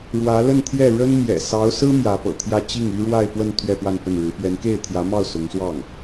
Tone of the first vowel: rising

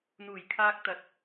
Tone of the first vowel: low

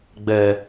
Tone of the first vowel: low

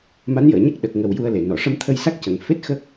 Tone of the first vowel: rising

